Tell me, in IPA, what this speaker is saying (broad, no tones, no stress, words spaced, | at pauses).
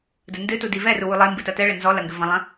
dɘndɨtu divɛru wulˠembɨ tɐtɛɭɘ nzɔlɐ ŋɡɘvɐ̃lˠɐ̃